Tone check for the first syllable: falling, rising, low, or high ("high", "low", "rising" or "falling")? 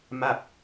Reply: falling